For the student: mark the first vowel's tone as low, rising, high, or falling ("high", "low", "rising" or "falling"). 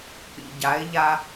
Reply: low